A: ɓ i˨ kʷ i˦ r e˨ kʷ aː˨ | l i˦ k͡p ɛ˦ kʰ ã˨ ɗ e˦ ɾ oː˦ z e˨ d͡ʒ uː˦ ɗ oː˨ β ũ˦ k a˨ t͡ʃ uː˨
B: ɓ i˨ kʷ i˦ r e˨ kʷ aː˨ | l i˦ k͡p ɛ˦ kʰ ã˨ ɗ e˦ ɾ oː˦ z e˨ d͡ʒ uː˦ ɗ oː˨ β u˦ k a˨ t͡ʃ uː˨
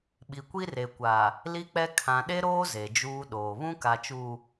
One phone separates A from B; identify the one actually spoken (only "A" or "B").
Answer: A